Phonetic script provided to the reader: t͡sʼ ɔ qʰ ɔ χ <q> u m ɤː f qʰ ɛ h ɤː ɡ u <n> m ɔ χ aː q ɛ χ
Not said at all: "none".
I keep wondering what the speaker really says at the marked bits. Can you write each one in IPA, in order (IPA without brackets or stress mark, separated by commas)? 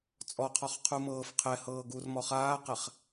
qʰ, r